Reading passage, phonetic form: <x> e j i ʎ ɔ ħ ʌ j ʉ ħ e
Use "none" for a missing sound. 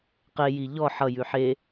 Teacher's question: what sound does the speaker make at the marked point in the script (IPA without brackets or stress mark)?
q